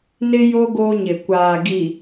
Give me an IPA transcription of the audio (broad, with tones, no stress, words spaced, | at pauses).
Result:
nɪ˦ jo˦ ɡo˦ɲɪ˨ kʷaː˨ɡi˨